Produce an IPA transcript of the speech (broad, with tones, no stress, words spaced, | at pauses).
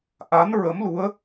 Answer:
ʔa˧˥nɹə˧˥mlu˧˥ə̯